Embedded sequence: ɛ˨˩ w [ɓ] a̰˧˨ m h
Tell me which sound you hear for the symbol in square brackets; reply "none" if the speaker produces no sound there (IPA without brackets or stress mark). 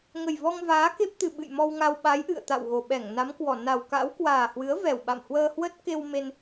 ɓ